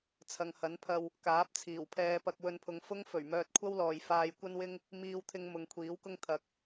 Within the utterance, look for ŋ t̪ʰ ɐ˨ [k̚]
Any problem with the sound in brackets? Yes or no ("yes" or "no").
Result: no